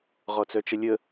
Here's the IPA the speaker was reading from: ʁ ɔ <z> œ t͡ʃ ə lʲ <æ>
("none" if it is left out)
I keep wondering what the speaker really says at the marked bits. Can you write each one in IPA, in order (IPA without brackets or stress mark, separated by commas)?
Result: t͡s, ə